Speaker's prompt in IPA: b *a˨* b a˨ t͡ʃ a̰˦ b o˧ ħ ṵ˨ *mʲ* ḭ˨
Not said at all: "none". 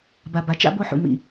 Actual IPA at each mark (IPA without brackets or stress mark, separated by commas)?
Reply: a˨, m